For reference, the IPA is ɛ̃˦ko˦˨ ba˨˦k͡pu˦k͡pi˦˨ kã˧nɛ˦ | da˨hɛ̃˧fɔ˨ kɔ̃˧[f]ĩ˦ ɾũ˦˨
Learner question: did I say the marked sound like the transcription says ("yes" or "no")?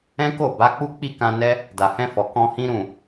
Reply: no